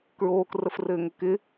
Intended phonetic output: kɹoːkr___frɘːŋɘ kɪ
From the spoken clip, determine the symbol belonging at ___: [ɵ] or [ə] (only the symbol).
ə